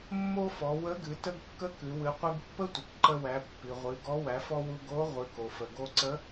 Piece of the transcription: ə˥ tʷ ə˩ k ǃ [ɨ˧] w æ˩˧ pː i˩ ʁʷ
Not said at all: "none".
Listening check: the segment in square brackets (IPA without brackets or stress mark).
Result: ə˧